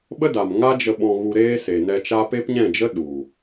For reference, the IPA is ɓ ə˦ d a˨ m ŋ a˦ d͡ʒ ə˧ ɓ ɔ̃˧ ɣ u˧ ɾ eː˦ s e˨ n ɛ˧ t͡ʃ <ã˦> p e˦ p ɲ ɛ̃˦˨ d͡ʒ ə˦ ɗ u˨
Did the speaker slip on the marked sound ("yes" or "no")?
yes